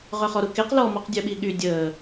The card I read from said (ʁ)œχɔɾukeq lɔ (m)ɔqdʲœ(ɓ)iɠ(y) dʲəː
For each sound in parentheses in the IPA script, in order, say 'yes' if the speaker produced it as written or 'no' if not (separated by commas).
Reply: yes, yes, yes, yes